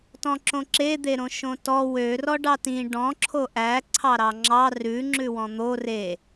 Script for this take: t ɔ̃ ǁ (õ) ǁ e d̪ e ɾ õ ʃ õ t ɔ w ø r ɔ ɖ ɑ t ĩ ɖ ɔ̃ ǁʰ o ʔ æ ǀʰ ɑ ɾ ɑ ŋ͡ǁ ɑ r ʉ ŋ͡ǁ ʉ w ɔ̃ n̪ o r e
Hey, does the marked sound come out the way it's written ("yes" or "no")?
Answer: yes